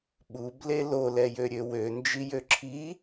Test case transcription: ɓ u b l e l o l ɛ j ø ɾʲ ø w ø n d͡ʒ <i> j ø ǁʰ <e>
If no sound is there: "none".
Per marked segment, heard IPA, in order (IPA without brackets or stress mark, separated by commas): i, i